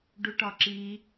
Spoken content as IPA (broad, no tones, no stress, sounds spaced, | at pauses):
ɖ u ʈ ɒ ǁ i